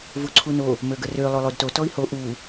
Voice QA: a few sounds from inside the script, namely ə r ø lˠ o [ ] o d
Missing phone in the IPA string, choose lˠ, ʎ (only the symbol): lˠ